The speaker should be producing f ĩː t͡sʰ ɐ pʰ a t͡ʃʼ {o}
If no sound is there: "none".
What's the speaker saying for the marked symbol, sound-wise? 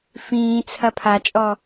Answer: ɔ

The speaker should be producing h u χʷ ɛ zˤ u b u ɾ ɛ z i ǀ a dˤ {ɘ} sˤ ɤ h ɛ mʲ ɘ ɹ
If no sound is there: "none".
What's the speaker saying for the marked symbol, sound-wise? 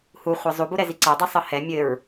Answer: ɛ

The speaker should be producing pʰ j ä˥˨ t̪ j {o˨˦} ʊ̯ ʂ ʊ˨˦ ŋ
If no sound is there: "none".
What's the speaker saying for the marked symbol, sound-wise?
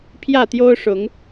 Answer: o˦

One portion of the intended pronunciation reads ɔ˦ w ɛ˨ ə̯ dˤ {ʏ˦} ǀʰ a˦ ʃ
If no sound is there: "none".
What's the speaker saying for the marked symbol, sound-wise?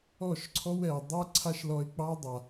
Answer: ɛ˦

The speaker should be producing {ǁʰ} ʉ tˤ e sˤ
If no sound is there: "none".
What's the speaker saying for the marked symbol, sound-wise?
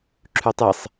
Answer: ǁʰ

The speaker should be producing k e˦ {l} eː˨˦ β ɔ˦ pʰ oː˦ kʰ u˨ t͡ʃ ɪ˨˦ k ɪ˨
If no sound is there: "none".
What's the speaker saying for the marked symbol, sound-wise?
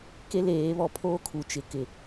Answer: l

